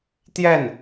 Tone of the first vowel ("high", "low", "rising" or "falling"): falling